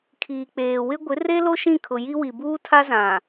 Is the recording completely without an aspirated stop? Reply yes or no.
no